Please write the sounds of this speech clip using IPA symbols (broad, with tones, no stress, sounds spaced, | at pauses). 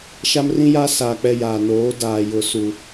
ʃ a˦ m r ĩ˦ j a˦ s a˨ k͡p ɛ˦ j a˨ n oː˨˦ d aː˨ j ʊ˨ s u˨